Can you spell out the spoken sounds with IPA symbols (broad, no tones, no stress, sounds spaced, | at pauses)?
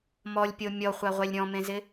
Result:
m ɔ lʲ pʲ o mʲ ɔ χʷ a ʁʷ ɛ lʲ ɾʲ ɔ̃ m ẽ z ɪ